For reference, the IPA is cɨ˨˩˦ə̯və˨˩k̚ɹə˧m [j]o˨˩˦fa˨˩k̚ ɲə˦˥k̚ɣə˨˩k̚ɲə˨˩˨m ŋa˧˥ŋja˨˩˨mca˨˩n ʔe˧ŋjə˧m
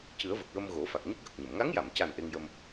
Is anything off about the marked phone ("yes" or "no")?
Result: yes